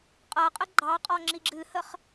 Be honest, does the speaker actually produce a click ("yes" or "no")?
yes